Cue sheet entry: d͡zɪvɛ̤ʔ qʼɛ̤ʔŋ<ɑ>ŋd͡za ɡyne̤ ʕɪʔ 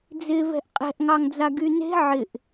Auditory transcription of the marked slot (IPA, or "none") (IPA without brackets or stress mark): ɑ